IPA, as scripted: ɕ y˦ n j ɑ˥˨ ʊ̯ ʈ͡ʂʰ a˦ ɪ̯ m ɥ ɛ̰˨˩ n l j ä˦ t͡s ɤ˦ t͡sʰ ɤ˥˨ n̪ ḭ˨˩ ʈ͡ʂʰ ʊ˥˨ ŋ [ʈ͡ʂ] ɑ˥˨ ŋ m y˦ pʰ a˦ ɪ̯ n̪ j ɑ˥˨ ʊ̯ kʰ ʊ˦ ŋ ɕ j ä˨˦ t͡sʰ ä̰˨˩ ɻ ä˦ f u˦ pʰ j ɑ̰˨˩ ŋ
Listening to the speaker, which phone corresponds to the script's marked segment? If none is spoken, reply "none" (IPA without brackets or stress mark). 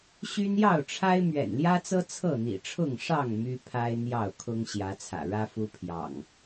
ʂ